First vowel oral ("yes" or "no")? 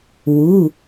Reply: yes